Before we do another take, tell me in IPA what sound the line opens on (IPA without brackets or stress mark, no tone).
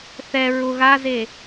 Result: θ